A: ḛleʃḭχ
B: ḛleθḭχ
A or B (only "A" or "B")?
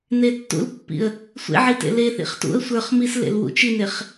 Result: B